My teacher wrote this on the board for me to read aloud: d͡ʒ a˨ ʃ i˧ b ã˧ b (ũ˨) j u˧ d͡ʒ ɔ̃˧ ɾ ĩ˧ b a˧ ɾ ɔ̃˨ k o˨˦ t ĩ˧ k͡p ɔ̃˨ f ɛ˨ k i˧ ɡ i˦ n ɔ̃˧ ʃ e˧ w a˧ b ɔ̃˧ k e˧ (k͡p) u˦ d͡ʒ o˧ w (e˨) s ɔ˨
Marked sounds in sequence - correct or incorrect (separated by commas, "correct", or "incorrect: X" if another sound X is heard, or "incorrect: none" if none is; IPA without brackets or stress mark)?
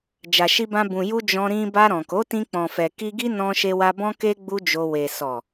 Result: correct, incorrect: ɡ͡b, correct